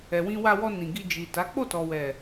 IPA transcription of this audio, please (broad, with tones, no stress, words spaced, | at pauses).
ɛ˨wĩ˧wa˧ wɔ˧ nĩ˨ɡi˧d͡ʒi˨ta˨˦ k͡po˦˨tɔ˨wɛ˨